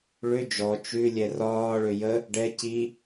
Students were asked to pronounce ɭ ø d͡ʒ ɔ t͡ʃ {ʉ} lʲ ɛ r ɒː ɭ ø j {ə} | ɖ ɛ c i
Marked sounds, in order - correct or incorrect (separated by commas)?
correct, correct